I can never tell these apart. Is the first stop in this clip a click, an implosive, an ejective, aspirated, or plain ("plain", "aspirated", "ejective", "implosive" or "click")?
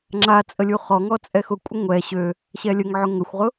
click